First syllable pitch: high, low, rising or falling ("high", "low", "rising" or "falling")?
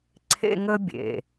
high